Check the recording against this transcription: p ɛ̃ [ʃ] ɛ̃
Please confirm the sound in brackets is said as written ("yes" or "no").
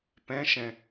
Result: yes